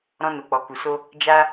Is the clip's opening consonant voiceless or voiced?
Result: voiced